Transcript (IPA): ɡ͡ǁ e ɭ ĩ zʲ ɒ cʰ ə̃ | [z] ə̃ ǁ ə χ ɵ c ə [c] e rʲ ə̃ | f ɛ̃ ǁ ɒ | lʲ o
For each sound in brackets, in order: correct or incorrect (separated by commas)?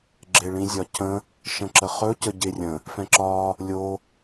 incorrect, incorrect